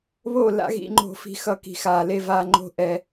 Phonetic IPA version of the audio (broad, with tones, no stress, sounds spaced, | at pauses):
β o˥˨ l a̰˦ ɣ ḭ˦ ŋ͡ǃ o̤˥˨ f i̤˦ x ʌ˥˨ k i̤˥˨ x aː˦ l e˦ v aː˦ ŋ͡ǃ o̤˥˨ ʔ ɛ˦